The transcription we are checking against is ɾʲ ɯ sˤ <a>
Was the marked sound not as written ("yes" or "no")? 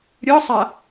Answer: no